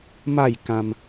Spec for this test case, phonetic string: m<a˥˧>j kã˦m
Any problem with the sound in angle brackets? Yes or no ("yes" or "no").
no